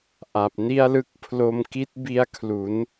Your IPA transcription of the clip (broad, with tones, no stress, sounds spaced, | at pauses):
ʔ a˨˩ p̚ n i˥˩ a̯ l ɯ˥˩ k̚ pʰ l o˧ m k i˦˥ t̚ b i˦˥ a̯ kʰ l u˩˦ n